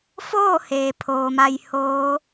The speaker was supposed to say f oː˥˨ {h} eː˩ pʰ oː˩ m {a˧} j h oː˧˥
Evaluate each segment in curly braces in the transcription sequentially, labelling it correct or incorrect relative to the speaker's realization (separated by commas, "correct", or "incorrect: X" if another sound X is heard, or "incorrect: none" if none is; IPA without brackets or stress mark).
correct, correct